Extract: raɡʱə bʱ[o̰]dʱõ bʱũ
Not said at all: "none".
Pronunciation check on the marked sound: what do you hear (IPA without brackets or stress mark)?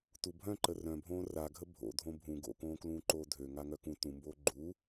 o̰